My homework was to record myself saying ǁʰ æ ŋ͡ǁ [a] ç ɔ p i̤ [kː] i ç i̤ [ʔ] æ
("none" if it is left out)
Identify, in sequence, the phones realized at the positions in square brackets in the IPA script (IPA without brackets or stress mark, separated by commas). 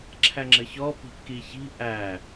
ə, kː, ʔ